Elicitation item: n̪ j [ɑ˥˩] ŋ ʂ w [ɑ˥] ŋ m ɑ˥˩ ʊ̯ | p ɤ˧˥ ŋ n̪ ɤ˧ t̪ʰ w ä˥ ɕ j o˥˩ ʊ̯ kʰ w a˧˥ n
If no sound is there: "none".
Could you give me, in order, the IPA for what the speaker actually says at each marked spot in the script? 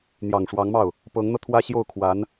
ɑ˨˩, ɑ˧˥

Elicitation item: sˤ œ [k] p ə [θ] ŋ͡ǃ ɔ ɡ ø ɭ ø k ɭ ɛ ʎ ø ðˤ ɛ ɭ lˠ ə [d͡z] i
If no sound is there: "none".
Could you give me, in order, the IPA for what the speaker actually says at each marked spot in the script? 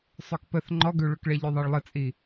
k, θ, t͡sʼ

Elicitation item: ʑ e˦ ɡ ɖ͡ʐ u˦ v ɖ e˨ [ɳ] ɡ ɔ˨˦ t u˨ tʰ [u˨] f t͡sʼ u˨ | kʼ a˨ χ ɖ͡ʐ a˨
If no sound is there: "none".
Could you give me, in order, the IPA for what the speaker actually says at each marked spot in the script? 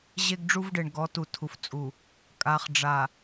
ɳ, u˨

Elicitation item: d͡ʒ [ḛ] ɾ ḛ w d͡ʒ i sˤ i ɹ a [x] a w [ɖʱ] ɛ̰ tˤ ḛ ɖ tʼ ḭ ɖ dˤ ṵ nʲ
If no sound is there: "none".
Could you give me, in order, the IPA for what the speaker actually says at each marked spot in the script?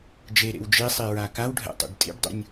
e, k, ɖʱ

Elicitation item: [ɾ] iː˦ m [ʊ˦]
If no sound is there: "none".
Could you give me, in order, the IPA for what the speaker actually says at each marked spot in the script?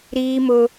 ɾ, ʊ˦

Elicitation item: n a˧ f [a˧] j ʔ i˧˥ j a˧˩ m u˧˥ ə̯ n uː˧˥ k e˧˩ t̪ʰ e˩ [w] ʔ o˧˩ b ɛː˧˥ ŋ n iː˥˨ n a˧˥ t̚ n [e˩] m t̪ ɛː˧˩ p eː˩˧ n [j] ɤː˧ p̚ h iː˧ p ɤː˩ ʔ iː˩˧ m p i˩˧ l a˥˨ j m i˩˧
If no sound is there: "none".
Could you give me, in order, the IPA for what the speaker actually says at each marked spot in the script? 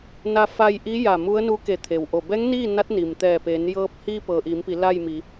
a˧, w, i˩, j

